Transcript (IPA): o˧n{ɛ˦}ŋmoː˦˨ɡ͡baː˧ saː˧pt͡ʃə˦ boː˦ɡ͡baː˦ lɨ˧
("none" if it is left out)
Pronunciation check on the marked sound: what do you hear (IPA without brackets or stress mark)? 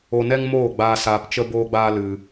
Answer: ɛ˦